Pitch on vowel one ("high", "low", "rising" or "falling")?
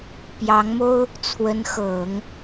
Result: rising